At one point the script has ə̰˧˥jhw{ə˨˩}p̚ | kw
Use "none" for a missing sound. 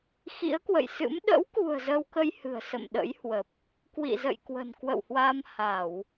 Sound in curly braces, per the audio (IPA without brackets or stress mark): ə˨˩